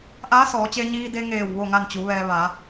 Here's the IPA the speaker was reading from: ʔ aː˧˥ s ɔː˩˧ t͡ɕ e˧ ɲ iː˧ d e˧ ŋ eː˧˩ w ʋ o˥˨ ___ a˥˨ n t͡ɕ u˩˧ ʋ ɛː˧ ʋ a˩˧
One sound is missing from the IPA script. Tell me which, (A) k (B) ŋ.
B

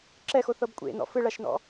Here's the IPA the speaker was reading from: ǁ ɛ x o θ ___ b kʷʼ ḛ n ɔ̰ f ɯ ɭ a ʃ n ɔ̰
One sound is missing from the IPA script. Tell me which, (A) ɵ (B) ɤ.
B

